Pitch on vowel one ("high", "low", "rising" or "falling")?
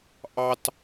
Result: high